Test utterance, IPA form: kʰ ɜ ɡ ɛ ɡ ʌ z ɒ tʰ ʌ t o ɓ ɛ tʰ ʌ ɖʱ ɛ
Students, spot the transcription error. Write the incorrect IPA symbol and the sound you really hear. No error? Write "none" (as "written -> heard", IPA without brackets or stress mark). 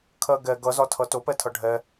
ɓ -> p